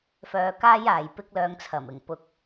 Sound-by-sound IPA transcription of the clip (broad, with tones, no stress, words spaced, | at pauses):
fœː˧kaː˥jaː˨j pɪ˥k̚lœː˧ŋt͡sʰɐ˨˩mɪ˨˩ŋ pʊ˧k̚